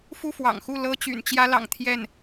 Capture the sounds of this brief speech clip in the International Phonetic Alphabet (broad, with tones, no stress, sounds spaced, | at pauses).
f u˥˩ f w ɑ̰˨˩ ŋ x u˥˩ l ɤ˥ t͡ɕ y̰˨˩ n t͡ɕ j ä˥ l ɑ̰˨˩ ŋ t̪ʰ j ɛ˥˩ n